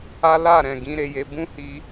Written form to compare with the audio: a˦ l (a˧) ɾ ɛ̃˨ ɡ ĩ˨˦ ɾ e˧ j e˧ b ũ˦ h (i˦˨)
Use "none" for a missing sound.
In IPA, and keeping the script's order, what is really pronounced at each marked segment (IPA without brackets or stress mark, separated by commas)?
a˦˨, i˧